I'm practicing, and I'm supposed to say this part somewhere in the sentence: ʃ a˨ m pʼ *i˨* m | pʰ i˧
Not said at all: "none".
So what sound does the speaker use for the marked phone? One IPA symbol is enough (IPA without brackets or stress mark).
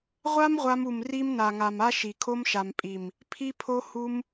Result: i˨